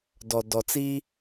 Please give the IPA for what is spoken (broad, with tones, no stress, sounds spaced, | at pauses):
d ɔ˨ d ɔ˨ t͡s i˦